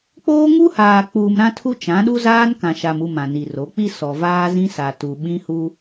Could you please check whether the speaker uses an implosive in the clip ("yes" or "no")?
yes